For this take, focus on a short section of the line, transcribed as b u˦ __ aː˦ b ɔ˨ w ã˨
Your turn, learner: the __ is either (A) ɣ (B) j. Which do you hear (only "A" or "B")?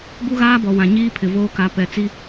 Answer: A